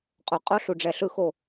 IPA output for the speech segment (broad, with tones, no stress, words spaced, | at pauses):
qʼo˨˥ qʼo˦˥ɬu˨ɖ͡ʐɛ˨ɬɯ˦˨ xo˦˨